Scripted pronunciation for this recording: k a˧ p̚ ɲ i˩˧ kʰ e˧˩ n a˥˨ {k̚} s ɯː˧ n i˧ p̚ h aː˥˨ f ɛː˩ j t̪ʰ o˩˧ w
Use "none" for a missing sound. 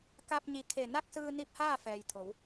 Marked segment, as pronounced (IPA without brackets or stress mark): k̚